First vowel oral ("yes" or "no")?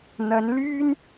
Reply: yes